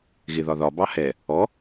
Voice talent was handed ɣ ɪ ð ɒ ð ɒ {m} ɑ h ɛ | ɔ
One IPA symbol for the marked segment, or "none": b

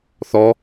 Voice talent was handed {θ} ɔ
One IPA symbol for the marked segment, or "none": θ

